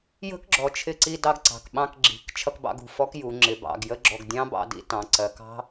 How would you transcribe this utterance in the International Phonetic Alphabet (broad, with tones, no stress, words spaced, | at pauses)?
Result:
jə̤˦˥kɡ͡ǁɔ˩t͡ʃʰɪ˧ǀi˧ dɑ˧ɡǀɑ̤˩kɓɑ̃˧k ɡ͡ǁi̤˩˧k t͡ʃʰʌ˧kbɑ̰˧ɡṳ˩ fɔ˦˥kju˩˧ŋ͡ǁɪ˩˧ bɑ̰˩˧ɡjə˦˥ɡ͡ǁɔ˧ɡ dʲɑ̃˦˥bɑ̰˧ dḭ˧tɑ̃˩˧ǀɜ˩˧k ɑ̤˦˥